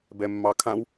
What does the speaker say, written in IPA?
bɛmːɑkʰãw

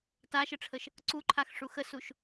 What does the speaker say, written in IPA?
taʃəʈ͡ʂʰəʃ | ǀuǃʰaxʂu xəsuʃ

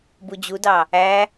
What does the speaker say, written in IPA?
bud͡ʑudɑ | æ

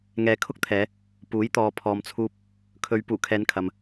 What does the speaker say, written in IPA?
ŋɛː˨˧kʰʊ˥k̚t̪ʰɛː˨˧ | puː˨˥jt̪ɔː˨ pʰɔː˨mt͡sʰuː˧p̚ | kʰɵ˨˧ɥ puː˨˩kʰɛː˨˧nkʰɐ˨m

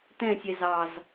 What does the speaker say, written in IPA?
tɛ̃sʲɛ zɑz

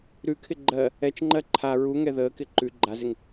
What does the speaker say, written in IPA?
ɾʉkʰɪ ɡ͡ǃɜ | ɛt͡ʃŋ͡ǃɜ ǃʰa ɹuŋɛ ðəːkɪ ǃʉ ɡ͡ǃazɪŋ

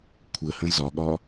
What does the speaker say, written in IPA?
kʷʰəhə̃ zɒɠɒ

